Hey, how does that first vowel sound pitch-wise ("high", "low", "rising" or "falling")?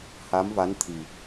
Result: rising